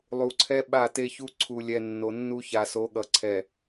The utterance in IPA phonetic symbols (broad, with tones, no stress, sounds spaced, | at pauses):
lˠ u˨ ǀʰ ɛ˦ ɓ a˦˨ t e˦ ç u˦ ǀʰ u˨ lʲ ɛ˨ nː o˨ nː u˦ ç a˨ s o˨˦ ɠ ʌ˨ ǀʰ ɛ˨